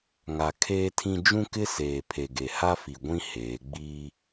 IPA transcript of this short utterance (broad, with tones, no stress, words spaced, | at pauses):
ŋa˨ kʰeː˦tʰĩ˦ d͡ʒũ˦kɪ˦ seː˨ pʰe˨ɡe˨ha˦fi˨ ɡʷĩ˦heː˨˦ ɡ͡biː˦